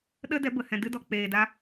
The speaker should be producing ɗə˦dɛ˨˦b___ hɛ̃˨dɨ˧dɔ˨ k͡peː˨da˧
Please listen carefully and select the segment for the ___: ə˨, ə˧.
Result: ə˨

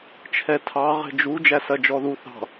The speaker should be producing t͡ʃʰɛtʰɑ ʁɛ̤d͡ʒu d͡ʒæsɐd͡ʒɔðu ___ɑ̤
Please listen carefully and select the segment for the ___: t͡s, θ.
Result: θ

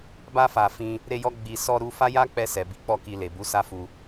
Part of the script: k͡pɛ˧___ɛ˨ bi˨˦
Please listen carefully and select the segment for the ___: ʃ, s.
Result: s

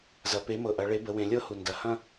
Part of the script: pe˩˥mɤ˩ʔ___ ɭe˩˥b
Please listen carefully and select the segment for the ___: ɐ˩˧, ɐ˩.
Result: ɐ˩˧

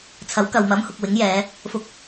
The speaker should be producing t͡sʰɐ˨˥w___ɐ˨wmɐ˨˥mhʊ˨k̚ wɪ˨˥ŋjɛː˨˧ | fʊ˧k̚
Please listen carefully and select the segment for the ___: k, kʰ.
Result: k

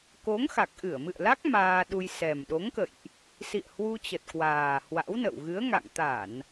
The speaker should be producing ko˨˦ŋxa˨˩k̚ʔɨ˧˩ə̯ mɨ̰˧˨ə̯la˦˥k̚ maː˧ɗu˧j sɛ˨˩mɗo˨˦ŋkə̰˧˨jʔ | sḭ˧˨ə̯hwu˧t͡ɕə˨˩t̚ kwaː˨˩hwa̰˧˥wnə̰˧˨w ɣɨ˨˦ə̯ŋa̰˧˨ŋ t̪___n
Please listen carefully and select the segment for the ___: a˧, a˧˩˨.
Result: a˧˩˨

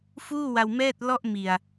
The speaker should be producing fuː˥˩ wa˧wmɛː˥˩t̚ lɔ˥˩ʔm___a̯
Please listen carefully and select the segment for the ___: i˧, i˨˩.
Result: i˨˩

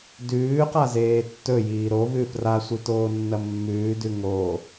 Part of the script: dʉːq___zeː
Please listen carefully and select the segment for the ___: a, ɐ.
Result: a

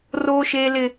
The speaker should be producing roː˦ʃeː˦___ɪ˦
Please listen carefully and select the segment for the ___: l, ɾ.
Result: l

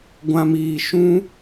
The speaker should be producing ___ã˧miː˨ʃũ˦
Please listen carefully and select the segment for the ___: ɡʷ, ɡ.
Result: ɡʷ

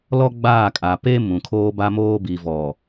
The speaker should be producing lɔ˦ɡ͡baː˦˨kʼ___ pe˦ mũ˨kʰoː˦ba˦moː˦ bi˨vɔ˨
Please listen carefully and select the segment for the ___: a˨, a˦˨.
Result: a˨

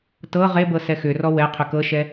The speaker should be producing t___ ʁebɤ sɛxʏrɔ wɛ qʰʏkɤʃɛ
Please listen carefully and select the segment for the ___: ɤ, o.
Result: ɤ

